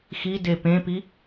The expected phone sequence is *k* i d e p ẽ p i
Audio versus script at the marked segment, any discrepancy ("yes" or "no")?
yes